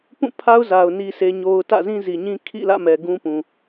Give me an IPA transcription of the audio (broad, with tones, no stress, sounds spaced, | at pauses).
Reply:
p ũ˦˨ pʰ a˦ ʊ̯ z a˨ ʊ̯ n i˦ sʰ e˦ ɲ o˦ ʊ̯ t ä̰˦˨ z ĩ˦ z i˨ ɲ ĩ˦ kʰ ḭ˦˨ l ä̰˦˨ m ɛ˨ ɡ ũ˦ p ũ˨